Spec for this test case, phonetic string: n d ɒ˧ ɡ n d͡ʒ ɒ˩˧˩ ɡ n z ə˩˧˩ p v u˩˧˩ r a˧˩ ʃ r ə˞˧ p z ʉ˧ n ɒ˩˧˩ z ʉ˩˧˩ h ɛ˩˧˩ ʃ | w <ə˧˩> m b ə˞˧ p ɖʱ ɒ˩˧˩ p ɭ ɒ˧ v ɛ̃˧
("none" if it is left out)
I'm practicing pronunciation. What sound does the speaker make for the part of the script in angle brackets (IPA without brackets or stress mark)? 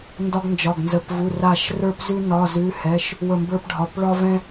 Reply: ə˧˩